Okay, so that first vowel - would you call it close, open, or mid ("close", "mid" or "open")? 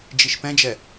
close